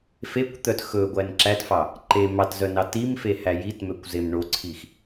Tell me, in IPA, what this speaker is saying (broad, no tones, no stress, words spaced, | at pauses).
fekʷt̪œt xɵɡʷæn ǁætfɑ | ǃe mɑtzœ nɑtimfe hæjitmøkʷ zemɳoǀʰix